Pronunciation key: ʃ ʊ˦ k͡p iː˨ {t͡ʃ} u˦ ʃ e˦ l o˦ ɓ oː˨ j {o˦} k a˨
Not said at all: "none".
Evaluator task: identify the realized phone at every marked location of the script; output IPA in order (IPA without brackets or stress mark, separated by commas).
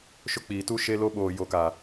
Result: t, o˨